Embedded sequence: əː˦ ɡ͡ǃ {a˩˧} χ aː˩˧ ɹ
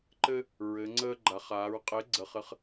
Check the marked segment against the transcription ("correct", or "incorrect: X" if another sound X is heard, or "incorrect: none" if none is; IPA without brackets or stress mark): correct